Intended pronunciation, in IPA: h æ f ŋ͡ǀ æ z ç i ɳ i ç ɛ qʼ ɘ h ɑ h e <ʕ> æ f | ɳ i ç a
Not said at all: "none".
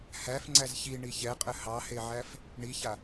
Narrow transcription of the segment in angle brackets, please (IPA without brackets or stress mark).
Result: ʕ